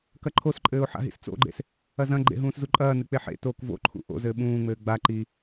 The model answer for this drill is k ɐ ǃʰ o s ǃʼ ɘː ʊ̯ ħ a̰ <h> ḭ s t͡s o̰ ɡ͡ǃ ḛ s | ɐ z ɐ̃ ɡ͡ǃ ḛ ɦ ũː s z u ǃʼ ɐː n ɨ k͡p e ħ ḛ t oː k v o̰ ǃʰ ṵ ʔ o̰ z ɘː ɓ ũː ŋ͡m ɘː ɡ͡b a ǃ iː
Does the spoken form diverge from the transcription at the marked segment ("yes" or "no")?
yes